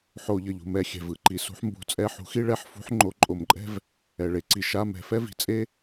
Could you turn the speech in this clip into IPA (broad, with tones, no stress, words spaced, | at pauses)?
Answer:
ħo˧˩˧ʎʌ˩ʎṳ˩mɛ˧˩˧ xʲɛ̤˩vɯ˧˩˧ ǃi˩sṳ˨˥ħmbṳ˨˥t͡sʼɛ˧˥˧ ħṳ˨˥xi˥ɭɛ˧˥˧ħfṳ˨˥ħ ŋ͡ǃo˨˥ǃʼo˧˩˧mǃʼɛ̤˥v | ɛ˩ ɭe˩ǀi˩ ʃa˧˥˧mɛ̤˧˩˧fɛ˥vi̤˩ t͡sʼe˥